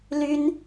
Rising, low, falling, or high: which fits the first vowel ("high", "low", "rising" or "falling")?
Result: high